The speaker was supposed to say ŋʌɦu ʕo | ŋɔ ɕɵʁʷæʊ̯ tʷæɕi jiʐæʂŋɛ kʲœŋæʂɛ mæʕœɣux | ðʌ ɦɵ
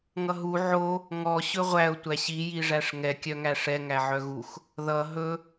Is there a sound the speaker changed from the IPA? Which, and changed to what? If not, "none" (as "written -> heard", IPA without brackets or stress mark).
m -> ŋ